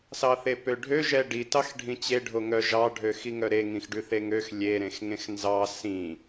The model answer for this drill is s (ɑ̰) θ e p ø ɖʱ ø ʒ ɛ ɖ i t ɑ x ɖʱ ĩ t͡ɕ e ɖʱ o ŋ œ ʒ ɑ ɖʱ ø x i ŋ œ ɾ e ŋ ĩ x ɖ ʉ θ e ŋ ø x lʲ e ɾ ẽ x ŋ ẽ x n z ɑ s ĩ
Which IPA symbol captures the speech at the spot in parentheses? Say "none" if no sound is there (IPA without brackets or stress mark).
ɑ